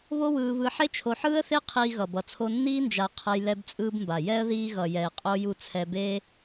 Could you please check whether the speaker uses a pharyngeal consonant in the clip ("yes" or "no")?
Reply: yes